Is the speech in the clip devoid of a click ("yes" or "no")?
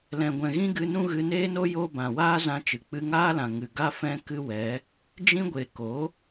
yes